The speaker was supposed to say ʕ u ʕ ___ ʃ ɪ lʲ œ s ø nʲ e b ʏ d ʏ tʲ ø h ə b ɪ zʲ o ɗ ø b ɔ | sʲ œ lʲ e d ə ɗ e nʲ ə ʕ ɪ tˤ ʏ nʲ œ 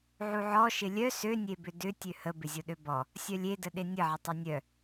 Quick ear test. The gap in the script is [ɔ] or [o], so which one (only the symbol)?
ɔ